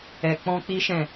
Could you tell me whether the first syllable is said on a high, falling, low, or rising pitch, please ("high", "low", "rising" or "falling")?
low